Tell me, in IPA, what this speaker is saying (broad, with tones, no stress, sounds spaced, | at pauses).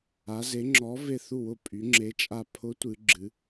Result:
a˧˥ z e˧˥ ŋ͡ǁ ɔ˧˥ v e˦˨ θ u˦˨ w ʊ˦˨ pʼ y˧˥ ŋ͡ǁ e˧˥ t͡ʃʼ a˦˨ pʰ ʊ˧˥ tʷ ɨ˧˥ ɡ͡ǁ ɨ˧˥